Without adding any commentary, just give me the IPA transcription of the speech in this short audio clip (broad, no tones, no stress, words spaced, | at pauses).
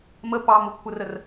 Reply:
mə pɑm ʊkʷʰərər